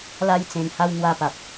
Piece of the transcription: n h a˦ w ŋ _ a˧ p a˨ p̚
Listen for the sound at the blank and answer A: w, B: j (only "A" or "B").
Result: A